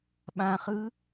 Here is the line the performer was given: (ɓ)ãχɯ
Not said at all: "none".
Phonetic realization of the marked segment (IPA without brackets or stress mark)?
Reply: ɓ